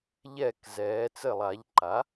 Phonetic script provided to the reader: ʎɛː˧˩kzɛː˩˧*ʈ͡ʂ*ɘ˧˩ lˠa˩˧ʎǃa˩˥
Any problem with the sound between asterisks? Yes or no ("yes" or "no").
yes